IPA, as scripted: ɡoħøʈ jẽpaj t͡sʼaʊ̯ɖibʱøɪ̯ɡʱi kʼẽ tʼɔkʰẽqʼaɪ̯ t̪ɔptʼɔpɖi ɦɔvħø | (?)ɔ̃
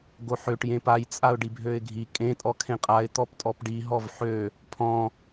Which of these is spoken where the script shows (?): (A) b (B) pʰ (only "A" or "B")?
B